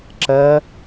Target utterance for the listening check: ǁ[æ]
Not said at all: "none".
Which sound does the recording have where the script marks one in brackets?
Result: ɜ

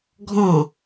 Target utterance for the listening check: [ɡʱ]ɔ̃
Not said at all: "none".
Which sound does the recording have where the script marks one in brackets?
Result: ɡʱ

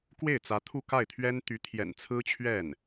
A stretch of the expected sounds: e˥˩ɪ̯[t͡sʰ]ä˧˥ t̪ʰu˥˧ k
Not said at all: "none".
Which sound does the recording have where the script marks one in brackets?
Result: t͡s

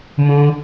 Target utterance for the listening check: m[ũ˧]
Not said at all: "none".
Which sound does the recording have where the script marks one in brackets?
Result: ũ˧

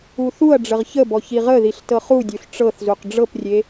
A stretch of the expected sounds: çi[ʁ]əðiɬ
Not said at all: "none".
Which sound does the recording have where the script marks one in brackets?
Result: ʁ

